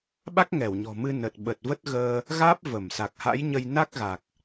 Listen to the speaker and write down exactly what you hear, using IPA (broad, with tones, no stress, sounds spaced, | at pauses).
ɓ a˦˥ k̚ ŋ ɛ˧˩ w ɲ ɔ̤˨˩ m ɨ˧ n ə˨˩ t̚ ɓ ə˨˩ t̚ v ə˦˥ t̚ ɣ əː˧ | ɣ aː˦˥ p̚ v ə˧˩ m s a˨˩ k̚ h a̰˧˥ j ɲ ə˧ j n a˦˥ k̚ ɣ a˨˩ k̚